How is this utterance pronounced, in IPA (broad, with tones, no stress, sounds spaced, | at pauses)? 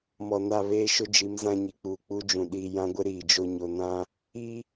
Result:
m ɔ˨ n a˦˨ β eː˦ ʃ ʊ˦ d͡ʒ i˨˦ m z ã˦ ɲ i˨ k͡p uː˨ k͡p u˦ d͡ʒ ũ˨ ɗ iː˨ j ã˦ ɡʷ ɪ˦ ɾ iː˨ d͡ʒ o˦ ɲ o˨ n ã˦ | i˦